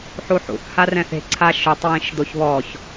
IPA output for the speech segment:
ħ u ħ ṵ θ h a r ɛ̃ θ e̤ ǀʰ a ʃ ʊ tˤ w ĩ ʃ d̪ o ç β ɔ ç

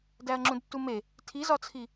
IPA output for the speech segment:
d æ ɐ̯ ŋ͡ǁ ũ d tː u m e | tʰ i z ɒ t͡sʰ i

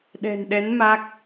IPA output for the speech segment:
ɗ ɛ̤˨˩ n ɗ ɛ˨˦ n m a˦˥ k̚

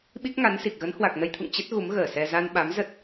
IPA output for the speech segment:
ɓ i˦˥ k̚ ŋ a˨˦ n s i˨˩ k̚ ɣ ə˨˦ n h w a˨˩ k̚ n ə˧ j t̪ʰ ṵ˧˨ ŋ t͡ɕ ə˦˥ t̚ ɣ u˨˦ m ɣ əː˧˩ s ɛ˧ z a˧ n ɓ a˨˦ m z ə˦˥ t̚

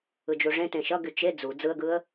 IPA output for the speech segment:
ɯ d͡ʒ u ʐ ẽ t ẽ ʃ ʌ ɡ y t͡ʃ e d͡z u d͡z ɯ ə̯ ɡ ɯ ə̯

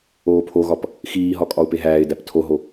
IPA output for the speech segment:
oː pʰ o ɣ ɒ p | x iː ɦ ɒ kʼ ɒ ʊ̯ p e ɦ æː ɪ̯ d æ p tʰ o ɦ o

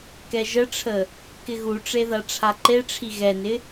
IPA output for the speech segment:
k ɛ ʒ ə ʈ͡ʂʰ ə | k ɪ ɣ u ʈ͡ʂ e ð a ʈ͡ʂʰ a ǃ e ʈ͡ʂʰ i ɣ ɛ n ɪ

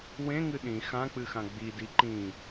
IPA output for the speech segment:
w ẽ ŋ ɨ ɗ ĩ x ã k͡p ɨ x ã ɡ͡b i d i ǃ ĩ

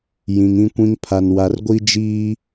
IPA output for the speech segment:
j ĩ˨ ŋ ĩ˦ kʷ ĩ˦ ŋ pʰ a˨ n w a˨ r ɡʷ i˦ d͡ʒ iː˦

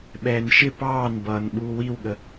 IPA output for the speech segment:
ɓ ɛː n ʃ ɪ p ɑː n b ʌː n ɓ uː w i w ɠ ə

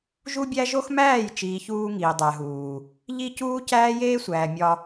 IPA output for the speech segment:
ʒ u˦ bʲ æ˦ ʒ o˦ x m æː˦˨ j t͡ʃ iː˨ ç uː˦ ŋ iː˨ dˤ æ˨ ɦ uː˨ | ʎ i˦ c uː˦ c æː˦ j eː˦ sʷ æː˨ mʲ ɒ˦

